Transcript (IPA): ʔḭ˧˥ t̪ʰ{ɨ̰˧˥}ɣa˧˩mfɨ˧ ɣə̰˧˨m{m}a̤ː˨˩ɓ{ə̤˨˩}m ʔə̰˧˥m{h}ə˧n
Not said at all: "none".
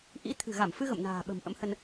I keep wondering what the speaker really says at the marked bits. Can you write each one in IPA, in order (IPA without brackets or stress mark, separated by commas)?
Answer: ɨ̤˨˩, n, ə̤˨˩, h